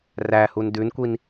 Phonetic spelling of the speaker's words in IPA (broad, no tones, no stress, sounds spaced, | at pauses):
r æ h u n d ʉ n kʷ i n